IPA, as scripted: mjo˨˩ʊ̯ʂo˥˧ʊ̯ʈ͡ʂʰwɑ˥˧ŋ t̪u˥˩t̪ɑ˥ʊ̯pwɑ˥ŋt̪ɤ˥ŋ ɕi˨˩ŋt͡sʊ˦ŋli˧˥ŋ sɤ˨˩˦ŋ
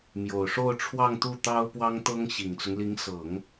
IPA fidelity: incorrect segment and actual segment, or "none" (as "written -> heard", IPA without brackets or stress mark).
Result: none